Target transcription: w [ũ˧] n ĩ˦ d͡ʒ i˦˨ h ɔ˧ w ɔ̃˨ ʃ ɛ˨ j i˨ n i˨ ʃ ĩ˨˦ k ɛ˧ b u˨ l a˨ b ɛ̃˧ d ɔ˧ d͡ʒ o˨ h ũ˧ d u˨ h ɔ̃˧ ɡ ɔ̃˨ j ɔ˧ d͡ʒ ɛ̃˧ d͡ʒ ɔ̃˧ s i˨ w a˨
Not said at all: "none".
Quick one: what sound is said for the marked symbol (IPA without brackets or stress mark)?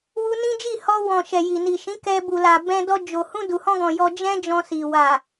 u˧